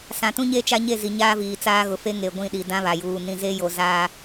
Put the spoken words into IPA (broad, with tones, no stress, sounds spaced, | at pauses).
s ã˨ t ũ˦ ɲ e˦ t͡ʃ a˦ ɲ e˦˨ z i˨ ɲ aː˦ v iː˨ t͡s aː˦ ɣ ʊ˨ f e˦ ŋ e˨ ɡʷ ĩ˦˨ ɗ i˨ d ã˦ β a˨ j uː˨ n ĩ˨ z e˦ j o˨ z aː˦